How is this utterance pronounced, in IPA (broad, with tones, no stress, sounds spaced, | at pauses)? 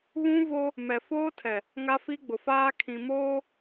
β ũ˦ v o˦ | m ɛ˨ f oː˦ tʰ ɛ˨ | ŋ a˦ f i˦ ɡ͡b ʊ˨ f aː˦ kʰ ĩ˨ m oː˦